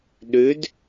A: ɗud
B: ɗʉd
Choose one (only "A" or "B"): B